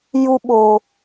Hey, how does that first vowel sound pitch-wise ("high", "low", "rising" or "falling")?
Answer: high